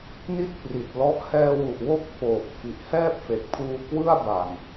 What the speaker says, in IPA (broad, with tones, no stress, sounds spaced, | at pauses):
n i˦˥ t̚ p r i˨˩ t̚ l ɔ˦˥ ʔ h ɛː˧ w u˨˩ ʔ w o˥˩ k̚ f oː˨˩ p̚ f i˨˩ ʔ h ɛː˥˩ p̚ f e˨˩ k̚ pʰ uː˧ k w ɯ˥˩ a̯ b a˨˩ n